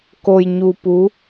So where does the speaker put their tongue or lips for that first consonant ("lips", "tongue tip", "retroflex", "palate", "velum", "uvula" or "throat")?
velum